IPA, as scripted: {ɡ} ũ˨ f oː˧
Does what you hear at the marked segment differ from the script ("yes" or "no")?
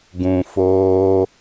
no